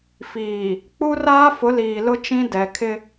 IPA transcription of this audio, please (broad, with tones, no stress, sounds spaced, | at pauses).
f iː˨ | k͡p u˦ r aː˦ f ʊ˨˦ l iː˨ l ʊ˦ t͡ʃ ĩ˦ d ɛ˨ kʰ ɪ˦